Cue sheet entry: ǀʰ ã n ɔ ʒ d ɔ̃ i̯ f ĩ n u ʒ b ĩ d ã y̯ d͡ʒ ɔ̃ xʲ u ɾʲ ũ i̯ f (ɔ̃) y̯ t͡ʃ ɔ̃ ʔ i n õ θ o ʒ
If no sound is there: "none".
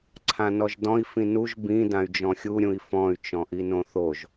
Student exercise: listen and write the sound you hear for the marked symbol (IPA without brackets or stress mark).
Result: ɔ̃